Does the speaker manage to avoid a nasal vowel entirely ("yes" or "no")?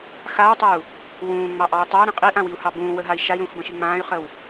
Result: no